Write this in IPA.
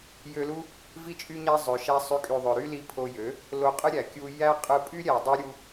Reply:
j ø˧ l u˦ | v i˦ t͡ʃʼ y˦ ɲ æ˦ zˤ ø˨ ʃ æ˧ sˤ y˨˦ kʼ y˨ ðˤ ø˨ ɾ y˦ l i˧ pʰ o˧ j ø˨˦ | l o˧ qʼ ɯ˦ ɾʲ æ˨ kʲ u˧ j æ˦ qʼ ɯ˧ pʼ y˦ ɾʲ æ˨ dˤ y˧ ɾʲ u˦

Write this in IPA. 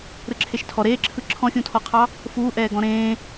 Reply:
ɾ ɯ ǁʰ e ʃ tʰ ɔ ɾ eː ǁʰ ɯ ǁʰ ɔ̃ xʲ ũ tʰ ɔ qʰ ɑ | f uː ʔ ɛː ɡ ɔ̃ ɾ ẽː

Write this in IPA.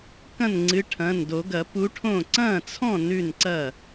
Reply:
k ɐ̃˥˩ n ŋ͡ǀ ɨ˨˥ ʈʰ ɐ̃˩˧˩ n d o˨˩˦ ɡ ɐ˨˩˦ p u˨˥ ʈʰ õ˥˩ ǀ ɐ̃˥˩ t͡sʰ ɔ̃˥˩ n ʉ˥˩ n ǀ ɐ˥˩

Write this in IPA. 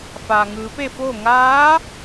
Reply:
f aː˩ ŋ ɯː˩˧ p e˥˨ f oː˥˨ ŋ aː˧˥

